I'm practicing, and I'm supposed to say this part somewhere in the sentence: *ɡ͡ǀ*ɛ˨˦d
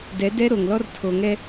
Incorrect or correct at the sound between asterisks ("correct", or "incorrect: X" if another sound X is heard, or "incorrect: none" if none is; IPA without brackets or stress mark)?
incorrect: d